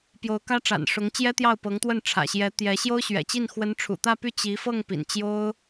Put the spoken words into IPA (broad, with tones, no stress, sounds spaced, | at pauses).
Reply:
p j o˧˥ ʊ̯ k ä˥ ʈ͡ʂ a̰˨˩ n ʂ ʊ˧˥ ŋ t͡ɕ j ɛ˥ t̪ j ɑ˥˩ ʊ̯ p ɤ˧˥ ŋ t̪ w ə˥˩ n ʈ͡ʂʰ ä̰˨˩ ɕ j ɛ˧˥ t̪ j ɛ˧˥ ɕ j o˥ ʊ̯ ɕ ɥ ɛ̰˨˩ t͡ɕ i˥˩ n x w ə˧˥ n ʈ͡ʂʰ ṵ˨˩ t̪ ä˥˧ p y˥˩ t͡ɕ i˧˥ f ɤ˥˩ ŋ p ḭ˨˩ n t͡ɕ j o˥ ʊ̯